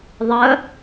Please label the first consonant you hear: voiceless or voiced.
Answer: voiced